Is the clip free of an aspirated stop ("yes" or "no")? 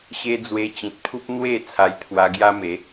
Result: no